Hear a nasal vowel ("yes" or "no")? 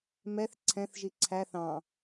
yes